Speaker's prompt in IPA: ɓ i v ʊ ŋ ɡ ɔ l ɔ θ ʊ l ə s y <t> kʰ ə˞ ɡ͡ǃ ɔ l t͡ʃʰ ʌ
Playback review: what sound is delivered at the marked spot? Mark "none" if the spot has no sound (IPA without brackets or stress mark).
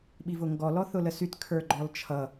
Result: t